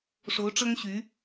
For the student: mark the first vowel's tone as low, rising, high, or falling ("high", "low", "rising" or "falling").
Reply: rising